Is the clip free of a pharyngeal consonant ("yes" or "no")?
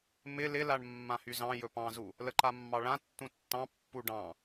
yes